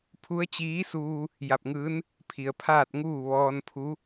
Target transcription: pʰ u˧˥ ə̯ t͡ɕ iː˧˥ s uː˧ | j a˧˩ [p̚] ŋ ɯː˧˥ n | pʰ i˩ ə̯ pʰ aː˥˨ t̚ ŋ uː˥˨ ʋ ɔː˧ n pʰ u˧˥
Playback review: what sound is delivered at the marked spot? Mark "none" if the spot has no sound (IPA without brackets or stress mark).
p̚